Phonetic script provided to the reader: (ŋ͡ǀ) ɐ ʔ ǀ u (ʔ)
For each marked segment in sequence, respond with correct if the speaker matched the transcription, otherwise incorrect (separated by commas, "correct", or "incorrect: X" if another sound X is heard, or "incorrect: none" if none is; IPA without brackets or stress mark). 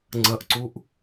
correct, correct